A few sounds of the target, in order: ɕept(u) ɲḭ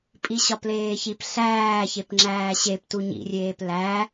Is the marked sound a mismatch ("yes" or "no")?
no